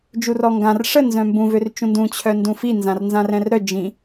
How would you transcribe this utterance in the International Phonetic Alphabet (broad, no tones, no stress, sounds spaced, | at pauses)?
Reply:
d͡ʒ u r ɔ ŋ ɡ ã r ʂ ə n z œ̃ m b ũ v ø r t͡ʃ ũ n d ũ t͡ɕʰ œ n d ũ f i n z ã r n z ã r ɛ̃ r ɾ œ d͡ʒ ĩ